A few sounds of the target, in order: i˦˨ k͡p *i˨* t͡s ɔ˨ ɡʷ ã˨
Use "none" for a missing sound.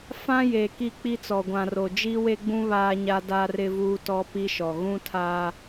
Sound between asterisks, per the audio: i˦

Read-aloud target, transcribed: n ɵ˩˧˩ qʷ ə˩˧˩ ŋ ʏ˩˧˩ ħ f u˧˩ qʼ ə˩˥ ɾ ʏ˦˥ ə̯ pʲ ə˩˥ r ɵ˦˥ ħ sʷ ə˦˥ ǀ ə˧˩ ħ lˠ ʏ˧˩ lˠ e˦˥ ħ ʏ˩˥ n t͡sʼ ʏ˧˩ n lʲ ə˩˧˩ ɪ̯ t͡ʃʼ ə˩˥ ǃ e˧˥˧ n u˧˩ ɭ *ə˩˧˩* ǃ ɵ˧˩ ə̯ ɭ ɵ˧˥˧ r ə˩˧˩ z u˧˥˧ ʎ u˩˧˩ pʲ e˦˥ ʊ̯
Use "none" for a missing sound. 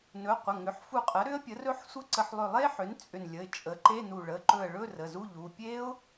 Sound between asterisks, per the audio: ə˩˧˩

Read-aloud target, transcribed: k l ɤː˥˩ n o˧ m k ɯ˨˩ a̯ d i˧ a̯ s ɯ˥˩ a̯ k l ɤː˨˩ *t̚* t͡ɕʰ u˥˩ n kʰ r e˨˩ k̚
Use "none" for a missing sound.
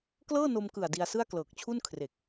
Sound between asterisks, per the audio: k̚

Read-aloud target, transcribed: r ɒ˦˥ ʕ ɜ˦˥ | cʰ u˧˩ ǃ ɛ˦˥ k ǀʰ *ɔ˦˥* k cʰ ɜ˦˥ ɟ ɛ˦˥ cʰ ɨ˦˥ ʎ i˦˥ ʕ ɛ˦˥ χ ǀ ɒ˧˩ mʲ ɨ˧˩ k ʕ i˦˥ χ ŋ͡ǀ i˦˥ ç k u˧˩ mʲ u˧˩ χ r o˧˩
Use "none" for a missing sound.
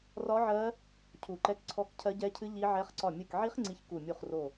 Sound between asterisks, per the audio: ɔ˦˥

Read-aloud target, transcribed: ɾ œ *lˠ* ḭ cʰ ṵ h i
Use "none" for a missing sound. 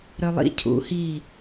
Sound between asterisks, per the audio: lˠ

